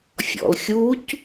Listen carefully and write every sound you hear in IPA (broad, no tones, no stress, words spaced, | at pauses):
fʲɔ̰lxʲuc